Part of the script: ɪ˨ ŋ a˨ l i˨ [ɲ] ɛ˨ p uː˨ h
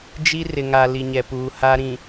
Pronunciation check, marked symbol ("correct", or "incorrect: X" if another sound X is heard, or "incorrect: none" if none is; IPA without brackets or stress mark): correct